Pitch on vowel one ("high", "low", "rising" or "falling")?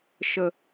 low